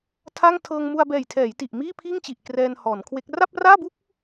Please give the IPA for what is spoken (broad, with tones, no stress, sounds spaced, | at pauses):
tʰ a˥˩ ŋ tʰ ɤː˧ ŋ m u˧ a̯ b ɛː˨˩ j tʰ ɛː˩˦ j t i˨˩ ʔ m iː˥˩ pʰ iː˥˩ ŋ t͡ɕ i˨˩ ʔ k r ɛː˧ n h ɔː˩˦ n kʰ w e˦˥ k̚ r a˥˩ p̚ r aː˥˩ b u˥˩ k̚